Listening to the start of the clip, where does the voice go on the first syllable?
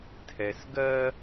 low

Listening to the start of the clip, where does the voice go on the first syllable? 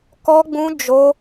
high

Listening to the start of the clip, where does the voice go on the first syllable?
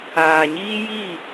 low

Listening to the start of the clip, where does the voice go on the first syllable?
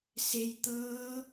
low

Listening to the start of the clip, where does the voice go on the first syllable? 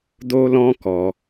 high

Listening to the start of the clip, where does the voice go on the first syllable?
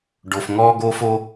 low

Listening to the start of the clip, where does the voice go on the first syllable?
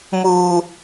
low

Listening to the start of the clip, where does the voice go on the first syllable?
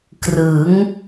rising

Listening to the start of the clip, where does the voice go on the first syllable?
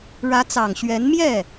rising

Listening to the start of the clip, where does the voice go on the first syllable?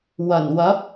low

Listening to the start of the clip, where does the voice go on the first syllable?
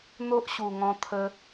high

